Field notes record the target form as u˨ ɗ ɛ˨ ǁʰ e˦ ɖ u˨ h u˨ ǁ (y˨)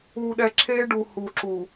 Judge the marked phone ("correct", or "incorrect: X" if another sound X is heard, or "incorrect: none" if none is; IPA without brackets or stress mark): incorrect: u˨